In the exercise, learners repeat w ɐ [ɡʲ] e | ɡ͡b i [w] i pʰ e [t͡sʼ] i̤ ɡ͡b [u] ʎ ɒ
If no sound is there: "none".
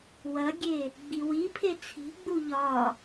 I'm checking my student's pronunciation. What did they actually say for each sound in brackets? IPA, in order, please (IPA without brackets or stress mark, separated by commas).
ɡʲ, w, t͡sʰ, u